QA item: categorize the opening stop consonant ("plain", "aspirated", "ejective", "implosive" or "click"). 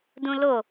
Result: plain